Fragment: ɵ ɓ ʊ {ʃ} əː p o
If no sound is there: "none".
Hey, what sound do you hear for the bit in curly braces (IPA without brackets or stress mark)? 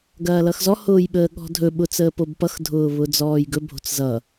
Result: t͡s